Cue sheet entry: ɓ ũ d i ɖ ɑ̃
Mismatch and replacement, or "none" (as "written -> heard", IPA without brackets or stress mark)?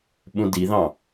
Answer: ɖ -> ð